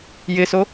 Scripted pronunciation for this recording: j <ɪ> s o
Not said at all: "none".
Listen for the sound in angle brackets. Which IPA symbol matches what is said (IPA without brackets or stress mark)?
ɪ